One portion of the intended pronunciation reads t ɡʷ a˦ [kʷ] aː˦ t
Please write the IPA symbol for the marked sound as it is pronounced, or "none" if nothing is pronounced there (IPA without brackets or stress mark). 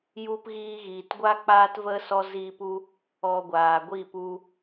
k͡p